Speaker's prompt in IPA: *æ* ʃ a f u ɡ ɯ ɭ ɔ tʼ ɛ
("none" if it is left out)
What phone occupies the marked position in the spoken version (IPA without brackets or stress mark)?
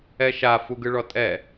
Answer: ɛ